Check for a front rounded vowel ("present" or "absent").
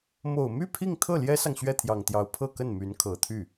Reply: present